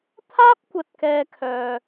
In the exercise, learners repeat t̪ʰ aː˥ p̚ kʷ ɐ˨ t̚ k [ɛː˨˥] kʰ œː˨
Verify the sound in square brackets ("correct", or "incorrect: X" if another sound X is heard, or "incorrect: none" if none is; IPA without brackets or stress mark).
incorrect: ɛː˧